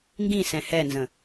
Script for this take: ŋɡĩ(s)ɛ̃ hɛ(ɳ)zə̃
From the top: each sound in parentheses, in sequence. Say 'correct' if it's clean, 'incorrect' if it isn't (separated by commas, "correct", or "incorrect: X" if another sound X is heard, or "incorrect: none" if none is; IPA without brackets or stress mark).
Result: correct, incorrect: n